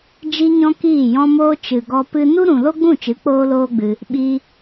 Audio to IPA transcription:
d͡ʒ i˧ ɲ ɔ̃˧ k iː˦˨ j ɔ̃˦ m oː˦ t͡ʃ ɨ˨ ɡ ɔ˧ p ɨ˧ n u˦ ɾ ũ˨ l o˦ ɡ͡b ũ˦˨ t͡ʃ ɨ˨˦ k͡p oː˦ l oː˦ ɡ͡b ɨ˧ | ɓ i˧

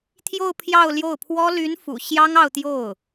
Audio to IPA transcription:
t̪ʰ j o˥˧ ʊ̯ pʰ j ɑ˥˧ ʊ̯ l j o˥˩ ʊ̯ pʰ w ɔ˥ l y˧˥ n f ṵ˨˩ ɕ j ɑ˥ ŋ ɑ˥˧ ʊ̯ t̪ j o˥˩ ʊ̯

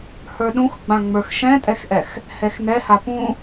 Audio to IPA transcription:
h ə˞ ɗ ũ x ɡ͡b ã ŋ͡m ə˞ x ʃ ɛ̃ tʼ ɛ x ʔ ɛ x | h ɛ x n ɛ h a p ũ

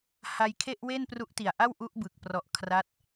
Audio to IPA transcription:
h a˧ j kʰ e˥˩ ʔ w e˥˩ n p r u˦˥ ʔ t i˨˩ a̯ ʔ a˥˩ w ʔ u˦˥ ʔ b ɯ˨˩ k̚ p r ɔ˨˩ ʔ kʰ r a˦˥ t̚

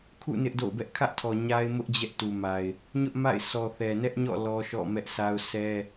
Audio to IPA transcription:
kʰ ṵ˦˨ n ɪ˦ ʔ d o̰˦˨ ʊ̯ b ɛ˦ ʔ kʰ ä˦ ʔ tʰ ɔ˨ ɲ a˦ ɪ̯ m ʊ˦ ʔ d͡ʑ ɛ˦ ʔ t u˨ m a˨ ɪ̯ | ɲ ʊ˦ ʔ m a̰˦˨ ɪ̯ sʰ ɔ˨ θ ɛ˨ n ɛ˦ ʔ ɲ ɔ̰˦˨ l ɔ˦ ʃ ɔ̰˦˨ m ɛ˦ ʔ s a˦ ʊ̯ sʰ ɛ˦

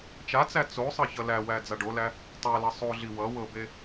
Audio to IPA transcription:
t͡ʃ a t͡s æ t͡s o sˤ ʌ ç ʌ l æ w æ d͡z a ɖ o l æ | tˤ æ l ʌ sˤ o ɮ i w ʌ w ɤ b e

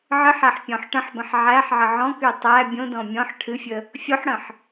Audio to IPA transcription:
ʕ ɨ ħ æ ħ pʲ ɔ̃ ħ ʈ ə̃ ħ b ə̃ ħ ʕ æ ħ ʕ ə ʕ ɔ̃ k y tˤ æ bʲ õ d ɔ̃ mʲ ɔ̃ ħ ʈʰ ɨ fʲ ə | fʲ o ħ ɽ ə̃ ħ

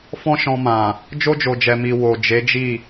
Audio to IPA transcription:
f ɔ̃˦ ʃ ɔ̃˧ m ã˨ | d͡ʒ o˧ d͡ʒ o˨ d͡ʒ ɛ˨ m i˨ w o˨ d͡ʒ e˨˦ d͡ʒ i˦˨

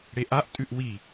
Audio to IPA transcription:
ɽ e ʔ a ʔ tʼ ʉ ʔ w i

